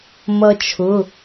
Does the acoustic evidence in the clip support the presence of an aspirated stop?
yes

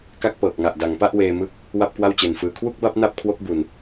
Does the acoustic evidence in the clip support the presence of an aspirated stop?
yes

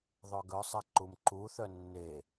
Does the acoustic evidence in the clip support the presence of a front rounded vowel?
yes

